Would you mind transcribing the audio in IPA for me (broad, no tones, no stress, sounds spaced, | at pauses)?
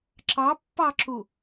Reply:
ǁ ɑ pː ɑ ǁ u